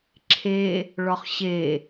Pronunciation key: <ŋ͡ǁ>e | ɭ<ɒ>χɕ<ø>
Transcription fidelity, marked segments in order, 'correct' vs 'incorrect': incorrect, correct, incorrect

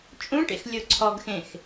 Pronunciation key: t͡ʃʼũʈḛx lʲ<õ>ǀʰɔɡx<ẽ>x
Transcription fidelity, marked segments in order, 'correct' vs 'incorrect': incorrect, correct

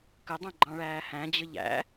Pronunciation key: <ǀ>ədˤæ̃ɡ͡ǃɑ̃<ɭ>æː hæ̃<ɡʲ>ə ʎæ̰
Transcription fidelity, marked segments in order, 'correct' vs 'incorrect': incorrect, correct, incorrect

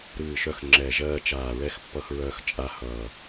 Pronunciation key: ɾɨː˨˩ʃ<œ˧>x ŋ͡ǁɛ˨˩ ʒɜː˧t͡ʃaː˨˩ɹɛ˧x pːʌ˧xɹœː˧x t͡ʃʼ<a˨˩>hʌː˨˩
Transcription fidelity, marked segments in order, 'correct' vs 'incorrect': correct, incorrect

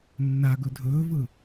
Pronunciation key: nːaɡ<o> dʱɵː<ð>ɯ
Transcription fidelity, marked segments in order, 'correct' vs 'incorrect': incorrect, incorrect

